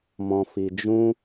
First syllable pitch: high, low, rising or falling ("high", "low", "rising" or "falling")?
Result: low